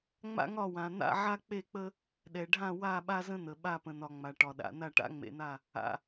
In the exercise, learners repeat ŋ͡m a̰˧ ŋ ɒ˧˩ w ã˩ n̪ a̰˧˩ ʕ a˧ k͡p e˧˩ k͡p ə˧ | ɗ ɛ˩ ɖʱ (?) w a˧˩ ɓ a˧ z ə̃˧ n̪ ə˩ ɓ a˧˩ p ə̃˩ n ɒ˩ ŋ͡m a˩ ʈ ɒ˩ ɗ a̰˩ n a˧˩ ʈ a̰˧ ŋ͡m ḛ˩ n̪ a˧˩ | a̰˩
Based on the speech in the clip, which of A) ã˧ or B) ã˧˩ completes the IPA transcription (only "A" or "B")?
B